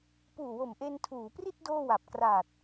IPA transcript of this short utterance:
puː˨˩wo˨˩mʔe˧n tʰuː˩˦pri˥˩t̚ doː˥˩wa˨˩p̚ kraː˨˩t̚

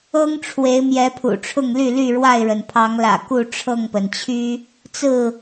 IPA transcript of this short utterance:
ɤ˦ŋʈ͡ʂʰwe˨˦ɪ̯mjɛ˨˦ pʰṵ˨˩ʈ͡ʂʰʊ˥˨ŋly˥˨ ly˥˨ɻwa˥˨ɪ̯ɻə˩n pʰɑ˨˦ŋlä̰˨˩ ku˥˨ʈ͡ʂʰɤ˥˨ŋpə˩nt͡ɕʰy˦ | t͡sɹ̩˥˨

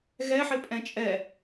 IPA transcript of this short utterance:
ɣɛ ħɪpʼɛ̃t͡ʃʼɛ

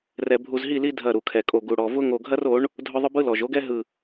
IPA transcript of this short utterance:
rɛ˨bʱu˨zɦi˦˨li˦ dʱɐ˦˨ɾu˨kʰɛ˨kʼo˨ ɡu˨ɽɔ˨vʊ˦ ŋo˨ɡʱɐ˦ro˨˦ɳ | dʱʊ˦ðˤʊ˦bɯ˦lɔ˨ʒ o˦ɡɛ˦ ɦɯ˦˨

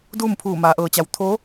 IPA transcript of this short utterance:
duː˥˨mpʰuː˧˩maː˩˧ ʔɤː˩t͡ɕa˩˧w t̪ʰoː˧˥

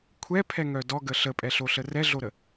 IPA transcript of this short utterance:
kʷʰɛpʰɛŋœ dɔɡə ɬəpʼɛɬoɬə rɛɮoɾə

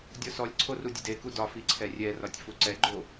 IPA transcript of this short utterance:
dʲɔsɔlʲǀʰo rudʲedeku dɒfi ǀʰɛrʲɛrɒtʲ fuǀɛɡ͡ǃo

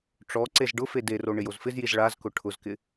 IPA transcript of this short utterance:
ʈ͡ʂɔ ǀezɖʊfe dero ɳɪjozfɪzjiz ɭazkʊ ʈʰʊzkɪ

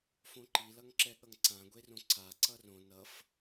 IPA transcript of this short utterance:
fõǃilʌŋǁɛ ɠʌŋǀãɡʷerõ ǀa ǀʌrõ nʌf

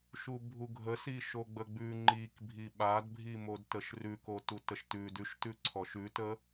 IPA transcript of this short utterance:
ʃubʱuɡʱə siʃoɡ͡bəɡ͡bʉ ŋ͡ǃik bʱiɓadbʱimod təʃrʉkotu təʃtʉ dʉʃtʉ ǀʰɔʃʉtə

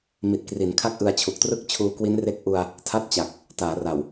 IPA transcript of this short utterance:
mi˨˩t̚kri˩˦n kʰa˥˩k̚ʔɯ˧a̯t͡ɕʰu˨˩k̚trɯ˥˩k̚ t͡ɕʰuː˧kwi˦˥nre˦˥k̚ʔu˧a̯ | tʰa˥˩t̚t͡ɕa˨˩k̚ | taː˩˦ra˨˩w

